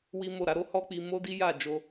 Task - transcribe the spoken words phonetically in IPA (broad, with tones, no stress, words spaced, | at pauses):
wi˦mo˦˨ɾa˨˦ ɾo˦hɔ˦k͡pi˧ mo˦di˦ja˦˨d͡ʒo˧